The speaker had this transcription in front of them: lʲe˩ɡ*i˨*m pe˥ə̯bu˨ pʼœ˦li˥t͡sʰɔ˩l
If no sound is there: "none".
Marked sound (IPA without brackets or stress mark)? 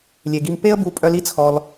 i˨